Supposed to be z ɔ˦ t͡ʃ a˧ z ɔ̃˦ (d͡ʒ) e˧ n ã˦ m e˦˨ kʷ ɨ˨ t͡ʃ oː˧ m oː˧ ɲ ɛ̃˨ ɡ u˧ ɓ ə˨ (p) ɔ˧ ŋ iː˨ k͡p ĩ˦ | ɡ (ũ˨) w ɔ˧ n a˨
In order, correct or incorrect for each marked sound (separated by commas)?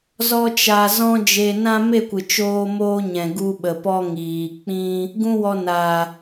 correct, correct, incorrect